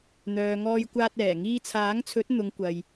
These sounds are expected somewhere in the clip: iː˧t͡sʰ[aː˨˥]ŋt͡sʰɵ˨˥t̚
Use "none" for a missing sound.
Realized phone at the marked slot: aː˨˥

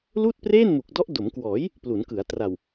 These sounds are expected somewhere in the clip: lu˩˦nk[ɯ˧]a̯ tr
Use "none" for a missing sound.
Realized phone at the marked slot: ɯ˩˦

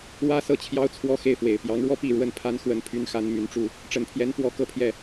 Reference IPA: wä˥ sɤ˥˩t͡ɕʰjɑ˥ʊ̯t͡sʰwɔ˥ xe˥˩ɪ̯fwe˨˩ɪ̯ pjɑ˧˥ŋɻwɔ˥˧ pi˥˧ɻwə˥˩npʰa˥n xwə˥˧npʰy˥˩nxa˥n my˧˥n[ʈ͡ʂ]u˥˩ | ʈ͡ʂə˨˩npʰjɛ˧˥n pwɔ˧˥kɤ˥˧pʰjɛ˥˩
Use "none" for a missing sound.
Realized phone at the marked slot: ʈ͡ʂ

